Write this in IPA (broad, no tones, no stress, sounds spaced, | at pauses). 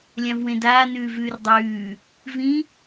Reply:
lʲ ã v w ẽ d aː n ʉː v ʉː r dˤ ʉː | v ĩ